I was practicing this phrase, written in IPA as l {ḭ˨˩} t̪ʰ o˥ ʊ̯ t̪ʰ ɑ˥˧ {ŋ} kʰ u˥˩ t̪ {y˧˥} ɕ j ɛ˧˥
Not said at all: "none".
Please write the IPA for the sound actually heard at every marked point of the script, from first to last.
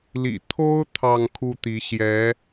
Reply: ḭ˨˩, ŋ, i˧˥

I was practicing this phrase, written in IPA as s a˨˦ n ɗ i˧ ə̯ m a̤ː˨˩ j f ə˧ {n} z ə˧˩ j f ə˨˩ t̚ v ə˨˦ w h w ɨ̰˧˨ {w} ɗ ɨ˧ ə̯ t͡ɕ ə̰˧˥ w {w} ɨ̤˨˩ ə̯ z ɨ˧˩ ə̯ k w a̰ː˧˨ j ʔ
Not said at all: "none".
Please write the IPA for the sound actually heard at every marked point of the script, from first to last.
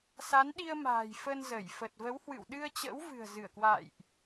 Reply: n, w, v

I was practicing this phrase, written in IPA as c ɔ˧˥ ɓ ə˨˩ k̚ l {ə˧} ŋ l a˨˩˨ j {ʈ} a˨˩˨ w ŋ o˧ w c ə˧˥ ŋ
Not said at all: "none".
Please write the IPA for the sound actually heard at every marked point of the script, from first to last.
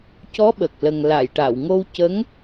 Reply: ə˨˩, ʈ

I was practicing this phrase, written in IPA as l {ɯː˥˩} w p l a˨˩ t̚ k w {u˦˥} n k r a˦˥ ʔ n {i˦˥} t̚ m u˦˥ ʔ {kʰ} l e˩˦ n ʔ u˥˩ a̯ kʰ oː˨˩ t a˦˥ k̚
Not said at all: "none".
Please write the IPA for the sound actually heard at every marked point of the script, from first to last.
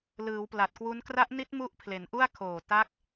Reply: ɯː˩˦, u˦˥, i˦˥, pʰ

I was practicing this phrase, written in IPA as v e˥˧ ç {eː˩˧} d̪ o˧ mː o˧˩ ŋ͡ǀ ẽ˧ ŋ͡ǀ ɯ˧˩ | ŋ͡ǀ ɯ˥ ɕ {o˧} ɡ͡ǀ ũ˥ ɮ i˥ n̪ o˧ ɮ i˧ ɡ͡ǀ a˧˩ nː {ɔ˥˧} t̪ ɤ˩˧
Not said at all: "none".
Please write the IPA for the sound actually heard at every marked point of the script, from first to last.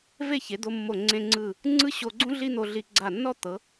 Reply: e˩˧, o˧, ɔ˥˧

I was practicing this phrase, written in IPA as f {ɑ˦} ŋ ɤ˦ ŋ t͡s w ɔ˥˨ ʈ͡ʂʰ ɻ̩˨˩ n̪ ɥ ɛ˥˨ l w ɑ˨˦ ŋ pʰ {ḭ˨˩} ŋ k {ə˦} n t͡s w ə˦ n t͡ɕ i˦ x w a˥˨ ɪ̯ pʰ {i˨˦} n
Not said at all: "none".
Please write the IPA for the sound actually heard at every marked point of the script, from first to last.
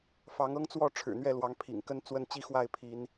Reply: ɑ˨˦, ḭ˨˩, ə˦, i˨˦

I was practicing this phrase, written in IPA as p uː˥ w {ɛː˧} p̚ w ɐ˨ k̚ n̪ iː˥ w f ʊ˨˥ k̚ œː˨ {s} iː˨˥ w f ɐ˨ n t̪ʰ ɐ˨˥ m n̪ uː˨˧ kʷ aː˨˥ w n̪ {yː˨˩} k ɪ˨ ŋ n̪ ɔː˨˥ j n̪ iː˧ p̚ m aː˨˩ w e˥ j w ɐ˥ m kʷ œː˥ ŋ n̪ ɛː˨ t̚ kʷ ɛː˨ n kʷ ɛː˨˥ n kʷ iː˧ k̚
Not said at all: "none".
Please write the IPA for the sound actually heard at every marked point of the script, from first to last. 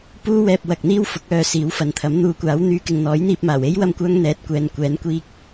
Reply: ɛː˧, s, yː˨˧

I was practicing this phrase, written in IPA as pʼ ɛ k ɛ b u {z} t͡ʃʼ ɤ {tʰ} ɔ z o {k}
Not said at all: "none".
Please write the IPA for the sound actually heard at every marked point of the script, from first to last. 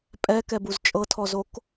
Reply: z, tʰ, k

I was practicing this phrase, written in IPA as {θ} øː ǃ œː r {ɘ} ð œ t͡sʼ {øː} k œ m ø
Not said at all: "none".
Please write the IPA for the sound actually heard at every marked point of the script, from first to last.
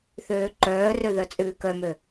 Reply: θ, ø, ʉː

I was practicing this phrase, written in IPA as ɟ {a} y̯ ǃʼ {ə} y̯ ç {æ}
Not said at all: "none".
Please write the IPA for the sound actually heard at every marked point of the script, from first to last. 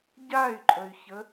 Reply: a, ə, ə

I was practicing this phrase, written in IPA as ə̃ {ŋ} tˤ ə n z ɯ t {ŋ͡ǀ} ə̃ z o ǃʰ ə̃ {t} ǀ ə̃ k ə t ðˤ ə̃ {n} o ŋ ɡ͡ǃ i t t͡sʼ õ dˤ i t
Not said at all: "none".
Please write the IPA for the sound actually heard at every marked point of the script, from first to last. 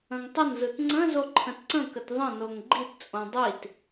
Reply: ŋ, ŋ͡ǀ, t, n

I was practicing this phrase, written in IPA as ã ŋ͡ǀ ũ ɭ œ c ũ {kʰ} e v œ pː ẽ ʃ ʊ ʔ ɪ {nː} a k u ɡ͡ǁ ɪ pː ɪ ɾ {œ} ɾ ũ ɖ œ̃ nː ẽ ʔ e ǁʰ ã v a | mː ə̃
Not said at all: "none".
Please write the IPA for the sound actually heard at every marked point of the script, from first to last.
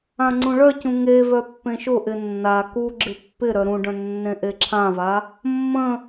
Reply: ŋ, nː, œ

